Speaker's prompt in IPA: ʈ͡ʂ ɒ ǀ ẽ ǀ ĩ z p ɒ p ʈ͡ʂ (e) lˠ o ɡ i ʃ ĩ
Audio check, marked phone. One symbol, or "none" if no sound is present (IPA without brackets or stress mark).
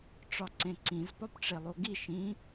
e